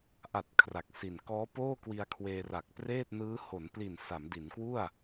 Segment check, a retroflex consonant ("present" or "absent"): absent